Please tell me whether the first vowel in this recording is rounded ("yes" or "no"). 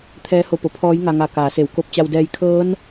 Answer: no